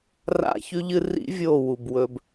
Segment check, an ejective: absent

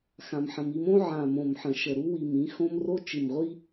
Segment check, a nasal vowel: present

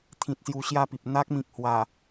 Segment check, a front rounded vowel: absent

